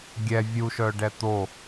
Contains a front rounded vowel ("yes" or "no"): yes